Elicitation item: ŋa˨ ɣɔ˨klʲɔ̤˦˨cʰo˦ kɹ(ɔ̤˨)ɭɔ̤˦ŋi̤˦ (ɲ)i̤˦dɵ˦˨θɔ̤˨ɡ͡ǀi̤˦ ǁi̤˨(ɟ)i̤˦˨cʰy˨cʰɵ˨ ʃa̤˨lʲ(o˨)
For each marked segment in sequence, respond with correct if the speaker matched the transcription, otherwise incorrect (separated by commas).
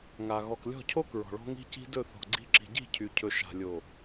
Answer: correct, incorrect, correct, correct